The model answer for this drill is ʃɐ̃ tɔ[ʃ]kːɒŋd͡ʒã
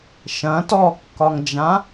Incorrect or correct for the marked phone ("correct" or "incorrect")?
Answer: incorrect